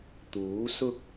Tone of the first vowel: rising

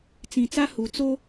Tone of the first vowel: low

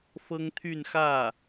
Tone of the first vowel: high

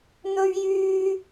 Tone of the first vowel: high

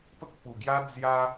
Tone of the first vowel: high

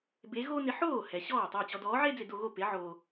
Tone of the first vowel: rising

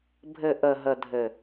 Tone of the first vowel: low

